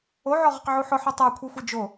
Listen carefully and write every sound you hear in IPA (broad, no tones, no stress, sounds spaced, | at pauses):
o ʕ ɔ ʁ o q ʕ u ħ ʊ ħ o tˤ a kʷʰ i xʷ i d͡ʒ o